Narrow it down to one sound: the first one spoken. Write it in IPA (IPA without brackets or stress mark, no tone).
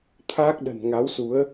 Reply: t̪ʰ